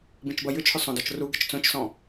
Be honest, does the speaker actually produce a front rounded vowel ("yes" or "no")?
yes